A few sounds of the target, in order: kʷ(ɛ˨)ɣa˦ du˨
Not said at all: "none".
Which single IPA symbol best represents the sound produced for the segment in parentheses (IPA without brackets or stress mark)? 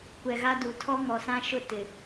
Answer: ɛ˨